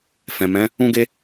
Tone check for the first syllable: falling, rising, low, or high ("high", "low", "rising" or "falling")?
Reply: low